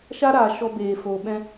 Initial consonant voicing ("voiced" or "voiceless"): voiceless